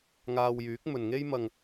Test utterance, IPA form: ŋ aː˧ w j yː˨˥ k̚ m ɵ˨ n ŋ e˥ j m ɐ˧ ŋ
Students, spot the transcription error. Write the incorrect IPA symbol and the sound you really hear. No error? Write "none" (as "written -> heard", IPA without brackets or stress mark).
none